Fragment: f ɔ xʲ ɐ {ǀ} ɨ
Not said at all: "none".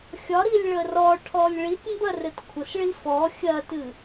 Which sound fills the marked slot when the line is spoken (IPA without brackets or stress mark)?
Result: t